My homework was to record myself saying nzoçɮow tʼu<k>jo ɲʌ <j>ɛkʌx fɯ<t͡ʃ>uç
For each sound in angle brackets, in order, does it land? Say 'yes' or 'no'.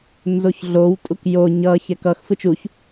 yes, no, yes

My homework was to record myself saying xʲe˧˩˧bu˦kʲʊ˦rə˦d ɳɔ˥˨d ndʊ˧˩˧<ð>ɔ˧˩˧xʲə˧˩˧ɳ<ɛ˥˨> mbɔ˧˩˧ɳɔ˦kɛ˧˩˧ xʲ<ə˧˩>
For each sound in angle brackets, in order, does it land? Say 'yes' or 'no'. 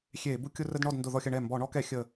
yes, no, yes

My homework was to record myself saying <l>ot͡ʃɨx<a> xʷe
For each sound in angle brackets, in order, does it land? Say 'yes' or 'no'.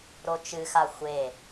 no, yes

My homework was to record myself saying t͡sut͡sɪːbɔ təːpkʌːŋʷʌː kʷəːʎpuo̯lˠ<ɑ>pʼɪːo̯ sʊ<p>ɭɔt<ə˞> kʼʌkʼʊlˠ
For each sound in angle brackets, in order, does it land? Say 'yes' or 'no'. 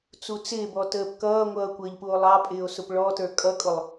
yes, yes, yes

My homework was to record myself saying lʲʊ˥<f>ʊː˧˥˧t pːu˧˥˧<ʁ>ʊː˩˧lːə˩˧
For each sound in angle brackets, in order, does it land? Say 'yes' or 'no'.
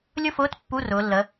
yes, no

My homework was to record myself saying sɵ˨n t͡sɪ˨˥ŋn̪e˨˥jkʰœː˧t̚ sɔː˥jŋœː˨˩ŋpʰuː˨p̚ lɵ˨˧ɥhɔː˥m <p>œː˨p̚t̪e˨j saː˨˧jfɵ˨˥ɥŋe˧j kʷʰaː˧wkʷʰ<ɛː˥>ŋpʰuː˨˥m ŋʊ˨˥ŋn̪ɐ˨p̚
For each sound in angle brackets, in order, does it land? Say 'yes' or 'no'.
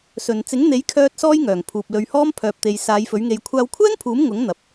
no, yes

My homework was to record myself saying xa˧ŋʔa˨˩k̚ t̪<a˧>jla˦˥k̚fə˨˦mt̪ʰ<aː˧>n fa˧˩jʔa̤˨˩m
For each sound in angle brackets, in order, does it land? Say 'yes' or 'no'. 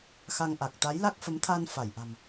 no, yes

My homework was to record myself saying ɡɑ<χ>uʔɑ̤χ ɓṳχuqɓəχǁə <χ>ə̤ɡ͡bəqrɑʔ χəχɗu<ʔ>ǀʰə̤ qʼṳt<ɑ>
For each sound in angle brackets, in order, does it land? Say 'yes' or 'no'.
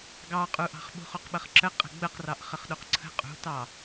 no, no, no, yes

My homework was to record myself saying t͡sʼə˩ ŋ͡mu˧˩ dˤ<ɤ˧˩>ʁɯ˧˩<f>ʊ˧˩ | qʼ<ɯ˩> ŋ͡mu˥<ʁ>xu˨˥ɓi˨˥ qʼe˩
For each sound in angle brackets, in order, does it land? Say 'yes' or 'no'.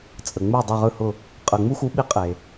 yes, no, yes, no

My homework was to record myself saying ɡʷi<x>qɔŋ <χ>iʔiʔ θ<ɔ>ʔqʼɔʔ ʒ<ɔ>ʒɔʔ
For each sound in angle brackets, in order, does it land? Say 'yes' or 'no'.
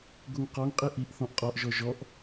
no, no, no, yes

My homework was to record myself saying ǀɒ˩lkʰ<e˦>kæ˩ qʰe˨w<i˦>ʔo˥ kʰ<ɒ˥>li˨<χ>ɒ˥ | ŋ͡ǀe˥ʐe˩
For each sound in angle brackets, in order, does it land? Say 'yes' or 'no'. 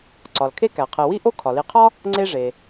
yes, no, no, no

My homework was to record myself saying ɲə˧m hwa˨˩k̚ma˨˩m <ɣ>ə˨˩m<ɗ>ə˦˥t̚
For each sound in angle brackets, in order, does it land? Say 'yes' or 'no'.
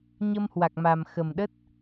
no, yes

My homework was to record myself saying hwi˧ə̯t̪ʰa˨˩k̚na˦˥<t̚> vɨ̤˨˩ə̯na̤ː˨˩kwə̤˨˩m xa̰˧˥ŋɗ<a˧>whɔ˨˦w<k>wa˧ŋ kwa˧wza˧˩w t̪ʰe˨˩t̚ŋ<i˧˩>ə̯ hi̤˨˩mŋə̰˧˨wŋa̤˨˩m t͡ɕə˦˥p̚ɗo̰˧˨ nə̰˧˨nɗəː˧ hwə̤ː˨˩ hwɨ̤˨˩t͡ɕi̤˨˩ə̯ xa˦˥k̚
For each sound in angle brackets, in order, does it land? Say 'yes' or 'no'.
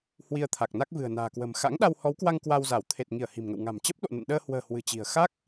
no, yes, yes, yes

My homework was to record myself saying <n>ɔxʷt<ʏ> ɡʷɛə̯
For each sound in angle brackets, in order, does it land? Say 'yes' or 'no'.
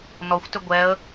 yes, yes

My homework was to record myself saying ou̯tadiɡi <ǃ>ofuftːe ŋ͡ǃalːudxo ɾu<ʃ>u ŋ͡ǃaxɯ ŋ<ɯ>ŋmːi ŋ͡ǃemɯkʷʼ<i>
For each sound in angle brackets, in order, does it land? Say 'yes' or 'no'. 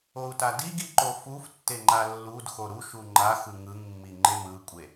yes, yes, yes, no

